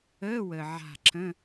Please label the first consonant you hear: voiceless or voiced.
voiced